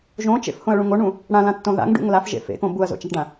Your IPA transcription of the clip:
ʒõt͡ʃḛfhõɐ̯ɭũŋ oɳũ | ɽãlãtːõ ða̰ŋɖṵŋ lafʒḛ fḛkõ buɐ̯zo̰t͡ʃaʈɖã

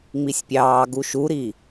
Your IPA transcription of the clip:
ŋ͡misʲpʲɑːɡu ʃuɾiː

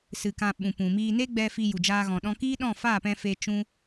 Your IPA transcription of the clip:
sɨ˧kã˧ ɓũ˨ pũ˨miː˧ ne˦ɡ͡bɛ˧ fi˧ju˨d͡ʒaː˧ ɣɔ̃˨ɗɔ̃˧kiː˦ɗɔ̃˦˨ faː˦˨pɛ̃˧ fe˧ t͡ʃũ˦

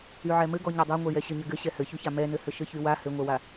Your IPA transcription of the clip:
yʕɛmɘɡɔ ɲadˤaŋʷɛjɛ ɕɘɲɘɡɘ ɕɛhɘçyça mɛnɘhɘ ʃɘçywa hɘŋʷɛwa

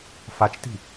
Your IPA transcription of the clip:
fat͡ʃti̤

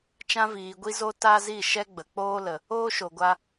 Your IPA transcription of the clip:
t͡ʃã˧viː˨ɡʷi˧zo˧ ta˦zi˦˨ ʃɛ˦ɡ͡bə˨k͡poː˦lə˨ | oː˦ʃo˨ɡʷa˧

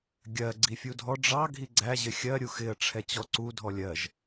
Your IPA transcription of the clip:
ɡʲɜ ɡ͡ǀifʲudʱɔ ɖ͡ʐɑ ɡʱiɡ͡ǀæ ʑɪxʲɜ ɾʲuxɪə̯ ʈ͡ʂʰɛt͡ɕɔǀu dʱɔlʲɜʒ

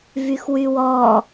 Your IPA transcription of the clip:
vyxwywɔ

